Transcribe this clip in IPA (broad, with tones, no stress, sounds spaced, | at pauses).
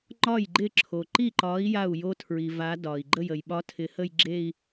ŋ͡ǃ ɒ˥˩ j ɡ͡ǃ ɪ˥˩ ǁʰ o˩ ǃ i˥˩ ǃ ɒ˨˥ i̯ j a˥˩ u̯ j o˦˥ tʰ ɹ i˩ v a˨˥ d ɒ˩ i̯ ɡ͡ǃ ə˥˩ j ə˩ j ɓ ɒ˦˥ tʰ ɪ˨˥ h ə˥˧ j ɡ͡ǁ e˥˧ i̯